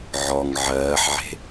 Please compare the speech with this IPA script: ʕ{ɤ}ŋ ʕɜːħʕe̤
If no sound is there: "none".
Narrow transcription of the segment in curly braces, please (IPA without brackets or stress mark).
ɔ